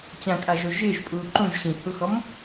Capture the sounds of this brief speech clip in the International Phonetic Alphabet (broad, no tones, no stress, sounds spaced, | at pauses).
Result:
t͡ɕ ã kʼ a ʒ o ʒ ɪː ʒ pʼ uː ǃ ũ ʒ ɕ ĩ h u x ɔ m